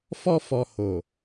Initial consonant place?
labial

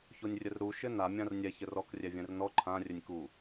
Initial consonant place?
palatal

